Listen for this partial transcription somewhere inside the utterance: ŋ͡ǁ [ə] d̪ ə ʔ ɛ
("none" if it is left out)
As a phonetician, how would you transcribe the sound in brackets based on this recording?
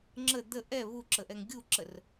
ə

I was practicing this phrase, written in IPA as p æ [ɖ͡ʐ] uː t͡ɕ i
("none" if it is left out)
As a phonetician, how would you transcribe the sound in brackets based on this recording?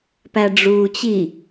ɖ͡ʐ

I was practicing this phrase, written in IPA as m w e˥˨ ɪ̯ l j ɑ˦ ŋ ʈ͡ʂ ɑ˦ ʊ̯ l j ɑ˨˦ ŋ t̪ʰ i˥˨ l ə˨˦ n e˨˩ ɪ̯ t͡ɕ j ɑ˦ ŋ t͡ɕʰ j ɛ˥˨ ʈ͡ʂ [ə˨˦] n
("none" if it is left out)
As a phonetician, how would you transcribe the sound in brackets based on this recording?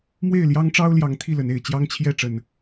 ə˨˩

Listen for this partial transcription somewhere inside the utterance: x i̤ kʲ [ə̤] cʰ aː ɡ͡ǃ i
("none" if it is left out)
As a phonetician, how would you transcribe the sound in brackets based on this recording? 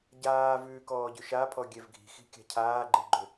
a̤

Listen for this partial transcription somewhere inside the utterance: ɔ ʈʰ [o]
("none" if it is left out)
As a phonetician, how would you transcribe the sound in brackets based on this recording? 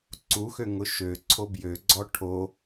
o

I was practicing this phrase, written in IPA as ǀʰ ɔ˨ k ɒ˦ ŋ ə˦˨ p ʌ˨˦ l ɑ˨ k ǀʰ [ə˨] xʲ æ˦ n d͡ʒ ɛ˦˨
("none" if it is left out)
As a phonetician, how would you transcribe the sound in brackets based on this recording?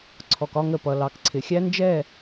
ɪ˨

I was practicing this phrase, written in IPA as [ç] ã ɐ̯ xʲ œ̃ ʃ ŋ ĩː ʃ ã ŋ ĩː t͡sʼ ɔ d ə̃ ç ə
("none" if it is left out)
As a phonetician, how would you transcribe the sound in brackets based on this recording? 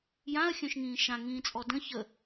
j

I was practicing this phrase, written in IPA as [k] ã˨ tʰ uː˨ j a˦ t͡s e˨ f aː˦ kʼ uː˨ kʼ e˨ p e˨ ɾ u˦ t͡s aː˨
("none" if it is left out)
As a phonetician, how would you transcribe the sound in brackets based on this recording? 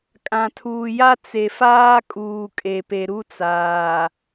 kʼ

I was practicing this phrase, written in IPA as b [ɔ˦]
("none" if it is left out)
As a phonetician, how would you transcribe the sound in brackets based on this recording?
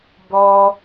ɔ˦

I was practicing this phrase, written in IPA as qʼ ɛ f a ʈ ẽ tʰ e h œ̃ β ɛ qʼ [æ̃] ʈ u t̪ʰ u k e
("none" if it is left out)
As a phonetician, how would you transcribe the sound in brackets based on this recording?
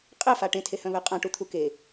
ã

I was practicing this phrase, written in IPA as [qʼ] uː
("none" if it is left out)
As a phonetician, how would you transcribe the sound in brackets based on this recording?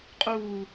qʼ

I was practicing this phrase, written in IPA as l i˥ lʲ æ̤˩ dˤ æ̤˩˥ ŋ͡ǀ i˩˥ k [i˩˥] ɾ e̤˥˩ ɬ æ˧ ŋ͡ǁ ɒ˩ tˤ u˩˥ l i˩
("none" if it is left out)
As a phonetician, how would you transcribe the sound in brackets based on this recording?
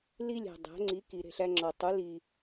i˩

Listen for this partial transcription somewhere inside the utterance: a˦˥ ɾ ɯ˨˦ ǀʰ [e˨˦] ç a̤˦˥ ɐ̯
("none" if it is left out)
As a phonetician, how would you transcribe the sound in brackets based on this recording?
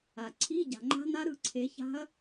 e˨˦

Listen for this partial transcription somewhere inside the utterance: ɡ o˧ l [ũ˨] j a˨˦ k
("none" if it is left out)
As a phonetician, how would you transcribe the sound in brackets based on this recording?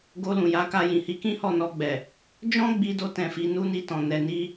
ũ˨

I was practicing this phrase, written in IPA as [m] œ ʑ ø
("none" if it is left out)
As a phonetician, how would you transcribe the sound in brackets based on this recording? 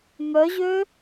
m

